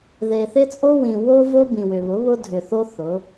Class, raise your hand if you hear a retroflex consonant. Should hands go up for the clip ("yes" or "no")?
no